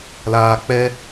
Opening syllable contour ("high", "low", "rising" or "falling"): low